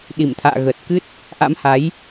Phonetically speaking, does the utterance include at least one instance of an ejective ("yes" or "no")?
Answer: no